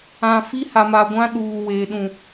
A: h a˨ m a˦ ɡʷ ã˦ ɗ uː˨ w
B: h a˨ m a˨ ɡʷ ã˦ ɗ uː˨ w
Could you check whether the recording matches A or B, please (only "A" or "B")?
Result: B